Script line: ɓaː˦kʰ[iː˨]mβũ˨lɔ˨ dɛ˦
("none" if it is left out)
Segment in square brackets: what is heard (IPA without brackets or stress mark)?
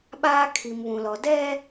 i˨